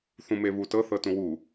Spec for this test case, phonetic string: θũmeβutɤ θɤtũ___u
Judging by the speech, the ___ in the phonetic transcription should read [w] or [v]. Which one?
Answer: w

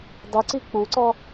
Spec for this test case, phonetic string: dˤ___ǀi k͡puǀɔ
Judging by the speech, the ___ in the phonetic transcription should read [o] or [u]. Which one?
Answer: u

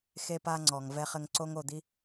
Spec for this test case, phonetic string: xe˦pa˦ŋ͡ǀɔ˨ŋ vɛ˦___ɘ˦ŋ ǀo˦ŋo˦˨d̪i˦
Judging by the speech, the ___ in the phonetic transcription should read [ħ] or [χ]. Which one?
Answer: χ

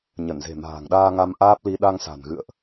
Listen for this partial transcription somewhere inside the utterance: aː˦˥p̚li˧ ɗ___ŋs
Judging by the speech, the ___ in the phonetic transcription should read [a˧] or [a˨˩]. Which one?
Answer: a˧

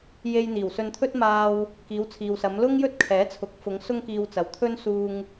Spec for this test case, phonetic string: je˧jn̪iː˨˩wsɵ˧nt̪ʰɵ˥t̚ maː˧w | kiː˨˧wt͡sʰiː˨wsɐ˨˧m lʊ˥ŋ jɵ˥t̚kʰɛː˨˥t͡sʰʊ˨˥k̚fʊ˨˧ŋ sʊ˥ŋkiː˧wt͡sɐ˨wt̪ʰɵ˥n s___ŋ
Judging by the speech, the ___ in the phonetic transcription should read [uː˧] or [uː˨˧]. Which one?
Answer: uː˧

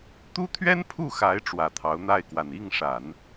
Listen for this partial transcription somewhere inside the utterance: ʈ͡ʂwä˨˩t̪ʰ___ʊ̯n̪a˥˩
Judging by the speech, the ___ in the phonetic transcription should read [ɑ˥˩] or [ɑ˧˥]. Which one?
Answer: ɑ˧˥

